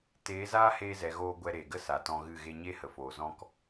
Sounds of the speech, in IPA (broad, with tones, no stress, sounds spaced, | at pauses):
t eː˨˦ z aː˦ h eː˧ z ɛ˨ ɣ oː˧ ɡʷ ɛ˧ ɾ eː˨ ɡ ə˦ s a˨ t ɔ̃˧ ɣ ɨ˦˨ ɣ e˧ ɲ e˦ h ə˨ f oː˨ z ɔ̃˧ k